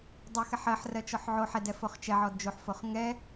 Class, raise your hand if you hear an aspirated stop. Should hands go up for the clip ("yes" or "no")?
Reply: no